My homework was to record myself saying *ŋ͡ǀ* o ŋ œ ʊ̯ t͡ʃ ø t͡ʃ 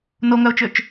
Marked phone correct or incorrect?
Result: incorrect